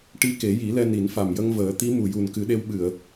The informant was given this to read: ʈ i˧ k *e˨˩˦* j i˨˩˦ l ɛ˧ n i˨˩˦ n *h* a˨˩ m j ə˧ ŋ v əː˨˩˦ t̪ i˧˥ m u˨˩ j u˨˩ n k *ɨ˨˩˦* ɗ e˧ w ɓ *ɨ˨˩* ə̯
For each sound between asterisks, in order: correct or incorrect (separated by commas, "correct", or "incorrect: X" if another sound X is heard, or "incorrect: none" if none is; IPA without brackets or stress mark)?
correct, incorrect: f, correct, incorrect: ɨ˨˩˨